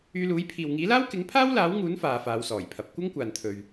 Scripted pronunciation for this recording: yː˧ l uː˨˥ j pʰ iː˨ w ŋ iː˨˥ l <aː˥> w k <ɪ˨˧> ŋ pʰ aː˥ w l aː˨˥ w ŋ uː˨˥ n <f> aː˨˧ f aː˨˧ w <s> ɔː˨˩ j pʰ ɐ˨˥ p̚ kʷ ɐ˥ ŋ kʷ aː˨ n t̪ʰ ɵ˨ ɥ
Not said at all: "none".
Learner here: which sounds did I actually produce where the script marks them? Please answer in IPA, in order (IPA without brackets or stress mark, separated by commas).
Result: aː˥, ɪ˨˥, f, s